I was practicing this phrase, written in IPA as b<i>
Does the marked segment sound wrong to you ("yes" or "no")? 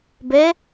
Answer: yes